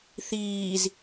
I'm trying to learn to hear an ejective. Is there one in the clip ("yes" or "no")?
no